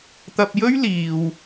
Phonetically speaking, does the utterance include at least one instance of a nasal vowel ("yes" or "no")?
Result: no